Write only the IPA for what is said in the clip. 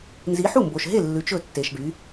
n z i˨˦ ħ u˥˩ m b o˨ ʃ ɦ e˥˩ lː ʉ˨˦ t͡ʃ ɵ˥˩ tː e˨ ʃ ɖ y˨˦

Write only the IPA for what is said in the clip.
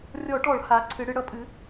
rʲ ɔ˧˩˧ ʈ ɔ˧˩˧ ɭ h a˩˥ ǀʰ ɨ˩˧ ɽ ɨ˩˧ ɽ ʌ˩˥ pʼ ɨ˩˥

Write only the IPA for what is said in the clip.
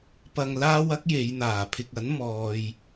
p ɐ˧ ŋ l aː˥ w ɐ˥ k̚ j e˨˧ j n̪ aː˨˩ pʰ ɪ˨ k̚ ɐ˨˥ n m ɔː˨ j

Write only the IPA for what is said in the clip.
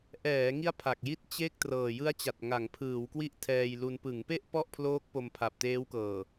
ʔ ɛː˩˦ ŋ i˦˥ a̯ pʰ a˨˩ k̚ j i˥˩ t̚ t͡ɕ e˥˩ k̚ t r ɤː˨˩ j ɯ˦˥ a̯ t͡ɕ a˨˩ t̚ ŋ a˩˦ ŋ pʰ ɯː˩˦ w k w i˥˩ ʔ tʰ ɛː˧ j l u˧ n p ɯ˩˦ ŋ p e˥˩ ʔ p ɔ˥˩ ʔ pʰ l oː˦˥ k̚ p o˧ m pʰ a˨˩ p̚ t eː˦˥ w k ɤː˨˩

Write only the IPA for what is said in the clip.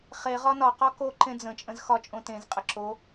χ e ʁ ɒ n ɒ q ɒ k o ǃ ẽ d͡z ə̃ t͡ʃʼ ə̃ z x ɒ t͡ʃʼ õ t ẽ z qʼ ə ǁ o

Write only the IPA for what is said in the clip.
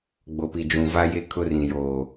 ɡ͡b o˨ p i˨ d͡ʒ ũ˨ v a˦ j e˦ kʰ ʊ˦ r ĩ˨ j oː˨

